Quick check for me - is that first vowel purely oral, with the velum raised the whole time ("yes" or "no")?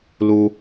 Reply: yes